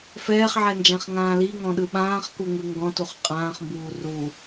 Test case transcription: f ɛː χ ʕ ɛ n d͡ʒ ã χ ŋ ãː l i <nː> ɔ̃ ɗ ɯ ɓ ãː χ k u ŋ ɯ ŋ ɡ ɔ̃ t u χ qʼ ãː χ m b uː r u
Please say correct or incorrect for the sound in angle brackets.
incorrect